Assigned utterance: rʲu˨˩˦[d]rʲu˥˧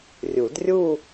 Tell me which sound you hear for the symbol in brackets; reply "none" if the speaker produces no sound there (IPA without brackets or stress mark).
d